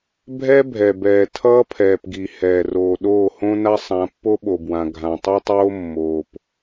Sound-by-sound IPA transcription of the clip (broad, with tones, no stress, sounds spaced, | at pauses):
bʱ ɛ˦ bʱ ɛ˨ b ɛː˨ tʰ ʌː˦ pʰ ɛː˨ p ɡ i˨ h ɛː˨ r oː˨ ɗ oː˦˨ h õ˦ n a˦ sˤ ã˨˦ pː o˦ ɓ o˨ b w ã˨ ɡʱ ã˨ tˤ i˦ tˤ oː˦ mː oː˨ p